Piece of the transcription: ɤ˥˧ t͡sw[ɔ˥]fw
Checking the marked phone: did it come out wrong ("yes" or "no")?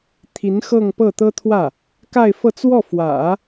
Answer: yes